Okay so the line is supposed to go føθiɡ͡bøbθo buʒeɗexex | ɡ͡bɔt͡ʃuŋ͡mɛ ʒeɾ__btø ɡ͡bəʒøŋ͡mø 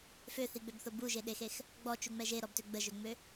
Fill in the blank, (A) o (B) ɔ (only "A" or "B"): B